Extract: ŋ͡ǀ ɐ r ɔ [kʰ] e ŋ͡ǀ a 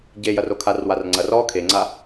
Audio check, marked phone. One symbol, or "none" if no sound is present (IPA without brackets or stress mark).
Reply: kʰ